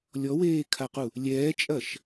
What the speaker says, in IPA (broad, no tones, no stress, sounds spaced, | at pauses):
lʲ ɔ w eː kʰ a q u | lʲ ɛː t͡ʃʼ ɐ ʃ